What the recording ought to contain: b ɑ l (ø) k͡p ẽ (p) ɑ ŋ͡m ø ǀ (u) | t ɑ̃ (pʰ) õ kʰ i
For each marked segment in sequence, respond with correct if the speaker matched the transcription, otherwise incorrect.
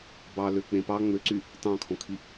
correct, correct, incorrect: y, incorrect: kʰ

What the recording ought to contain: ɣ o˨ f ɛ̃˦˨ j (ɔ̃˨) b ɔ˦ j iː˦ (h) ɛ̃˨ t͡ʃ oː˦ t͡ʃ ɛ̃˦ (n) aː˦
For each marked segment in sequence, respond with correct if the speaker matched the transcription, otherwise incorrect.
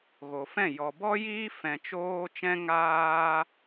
incorrect: ɔ˨, incorrect: f, incorrect: ŋ

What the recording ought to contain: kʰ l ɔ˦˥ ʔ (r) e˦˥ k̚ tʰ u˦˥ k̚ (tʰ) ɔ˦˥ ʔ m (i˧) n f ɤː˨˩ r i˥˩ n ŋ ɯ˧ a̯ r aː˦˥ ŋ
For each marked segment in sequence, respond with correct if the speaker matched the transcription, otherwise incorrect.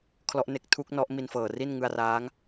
incorrect: n, incorrect: n, correct

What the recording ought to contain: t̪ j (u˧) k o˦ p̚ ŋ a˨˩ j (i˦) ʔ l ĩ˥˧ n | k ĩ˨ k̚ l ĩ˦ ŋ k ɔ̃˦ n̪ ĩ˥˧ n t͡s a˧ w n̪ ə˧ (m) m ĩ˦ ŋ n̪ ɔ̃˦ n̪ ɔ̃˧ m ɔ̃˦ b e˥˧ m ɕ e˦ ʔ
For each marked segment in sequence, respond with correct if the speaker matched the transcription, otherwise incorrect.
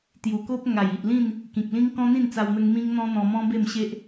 incorrect: u˨˩, incorrect: i˨, incorrect: ŋ

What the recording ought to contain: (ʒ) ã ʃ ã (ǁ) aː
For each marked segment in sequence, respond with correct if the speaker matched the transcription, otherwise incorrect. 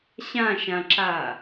incorrect: ɕ, correct

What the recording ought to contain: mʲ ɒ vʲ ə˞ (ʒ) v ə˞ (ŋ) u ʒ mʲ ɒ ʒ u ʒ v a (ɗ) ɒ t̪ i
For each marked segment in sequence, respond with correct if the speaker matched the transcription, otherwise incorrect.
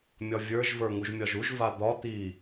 correct, correct, incorrect: d̪

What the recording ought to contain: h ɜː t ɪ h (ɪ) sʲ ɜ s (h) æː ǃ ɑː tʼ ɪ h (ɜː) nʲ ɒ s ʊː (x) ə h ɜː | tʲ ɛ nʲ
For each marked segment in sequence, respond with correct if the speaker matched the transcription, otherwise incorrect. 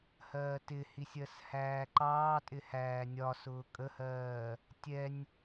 incorrect: i, correct, incorrect: æː, incorrect: kʼ

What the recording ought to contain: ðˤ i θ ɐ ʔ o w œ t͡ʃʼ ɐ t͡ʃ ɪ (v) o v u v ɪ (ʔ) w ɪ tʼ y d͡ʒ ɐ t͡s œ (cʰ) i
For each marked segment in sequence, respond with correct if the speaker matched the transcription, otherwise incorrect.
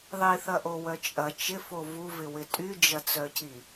incorrect: f, incorrect: none, correct

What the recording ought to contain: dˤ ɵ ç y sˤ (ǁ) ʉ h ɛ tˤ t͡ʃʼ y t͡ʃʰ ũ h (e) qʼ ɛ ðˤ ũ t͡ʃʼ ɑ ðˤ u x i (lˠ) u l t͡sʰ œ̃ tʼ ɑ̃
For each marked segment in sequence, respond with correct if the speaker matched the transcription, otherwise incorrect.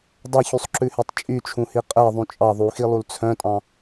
correct, incorrect: i, correct

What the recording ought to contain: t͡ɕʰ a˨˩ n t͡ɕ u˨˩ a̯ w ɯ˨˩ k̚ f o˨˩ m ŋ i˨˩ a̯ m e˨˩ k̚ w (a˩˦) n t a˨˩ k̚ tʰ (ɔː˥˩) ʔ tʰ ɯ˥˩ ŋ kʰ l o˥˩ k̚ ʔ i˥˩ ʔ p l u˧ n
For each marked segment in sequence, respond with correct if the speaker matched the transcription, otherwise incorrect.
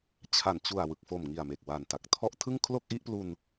incorrect: a˨˩, incorrect: ɔ˥˩

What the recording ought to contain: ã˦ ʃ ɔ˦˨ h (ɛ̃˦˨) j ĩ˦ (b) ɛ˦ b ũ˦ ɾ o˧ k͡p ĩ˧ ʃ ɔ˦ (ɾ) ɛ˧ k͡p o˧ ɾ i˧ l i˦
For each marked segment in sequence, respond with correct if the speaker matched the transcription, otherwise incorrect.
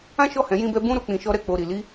incorrect: ɛ̃˨˦, correct, correct

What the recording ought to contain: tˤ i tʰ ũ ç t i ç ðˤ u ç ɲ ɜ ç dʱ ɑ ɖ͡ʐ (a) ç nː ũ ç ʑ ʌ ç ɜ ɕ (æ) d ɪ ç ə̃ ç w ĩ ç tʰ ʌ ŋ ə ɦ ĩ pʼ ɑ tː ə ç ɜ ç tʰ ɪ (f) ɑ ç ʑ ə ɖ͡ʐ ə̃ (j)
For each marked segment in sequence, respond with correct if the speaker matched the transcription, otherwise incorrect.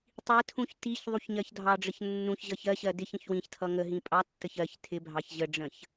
incorrect: ə, incorrect: ɜ, incorrect: bʱ, incorrect: ç

